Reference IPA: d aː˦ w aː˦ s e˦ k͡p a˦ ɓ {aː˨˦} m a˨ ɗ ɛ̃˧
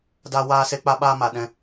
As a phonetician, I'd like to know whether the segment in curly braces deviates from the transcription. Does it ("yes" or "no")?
yes